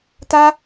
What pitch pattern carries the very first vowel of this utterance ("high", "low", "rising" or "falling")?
high